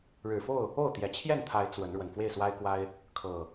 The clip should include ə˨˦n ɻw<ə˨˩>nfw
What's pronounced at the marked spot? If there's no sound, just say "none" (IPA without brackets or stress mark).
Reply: ə˨˩